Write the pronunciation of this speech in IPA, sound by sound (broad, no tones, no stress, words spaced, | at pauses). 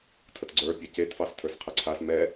tʰətɡ͡ǀə˞ pʲɑcetfɑs tʰə˞sqʰɛǀʰas mɛ